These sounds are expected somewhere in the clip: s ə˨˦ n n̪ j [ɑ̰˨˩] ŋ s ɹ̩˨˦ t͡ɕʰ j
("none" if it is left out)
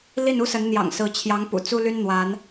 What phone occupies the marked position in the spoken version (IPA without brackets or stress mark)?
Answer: ɑ̰˨˩